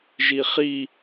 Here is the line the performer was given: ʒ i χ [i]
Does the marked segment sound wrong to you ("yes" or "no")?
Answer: no